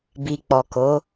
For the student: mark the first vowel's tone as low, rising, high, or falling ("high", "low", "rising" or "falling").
low